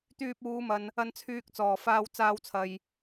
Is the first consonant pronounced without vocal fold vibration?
yes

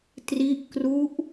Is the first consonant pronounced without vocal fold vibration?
yes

